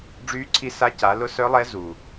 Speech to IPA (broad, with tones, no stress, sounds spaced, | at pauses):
ɖ͡ʐ yː˧˥ ǀʰ i˧ s a˧˥ c a˩˧ l ʊ˧˥ s œ˧˥ lˠ ɛ˧˥ z u˩